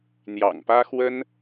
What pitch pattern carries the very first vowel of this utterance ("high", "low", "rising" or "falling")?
low